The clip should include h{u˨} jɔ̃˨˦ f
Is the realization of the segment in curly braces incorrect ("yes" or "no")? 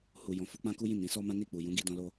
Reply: no